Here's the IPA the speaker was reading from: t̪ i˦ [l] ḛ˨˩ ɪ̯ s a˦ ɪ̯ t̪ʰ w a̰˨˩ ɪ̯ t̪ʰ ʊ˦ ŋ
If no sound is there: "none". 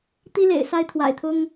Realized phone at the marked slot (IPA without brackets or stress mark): l